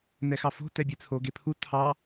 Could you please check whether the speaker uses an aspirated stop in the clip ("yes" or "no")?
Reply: yes